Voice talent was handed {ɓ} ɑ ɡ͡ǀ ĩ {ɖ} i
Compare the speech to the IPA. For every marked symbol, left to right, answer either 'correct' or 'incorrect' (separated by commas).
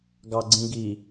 incorrect, incorrect